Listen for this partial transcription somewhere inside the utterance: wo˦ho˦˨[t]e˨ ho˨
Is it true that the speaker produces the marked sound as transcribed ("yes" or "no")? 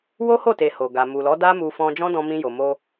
yes